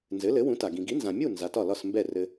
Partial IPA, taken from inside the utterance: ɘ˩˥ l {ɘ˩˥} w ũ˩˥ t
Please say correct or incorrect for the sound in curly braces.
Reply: correct